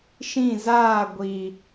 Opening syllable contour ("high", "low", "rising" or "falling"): falling